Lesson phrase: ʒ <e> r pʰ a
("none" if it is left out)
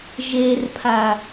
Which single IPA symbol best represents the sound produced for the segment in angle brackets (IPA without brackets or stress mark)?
e